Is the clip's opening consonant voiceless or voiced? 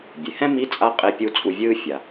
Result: voiced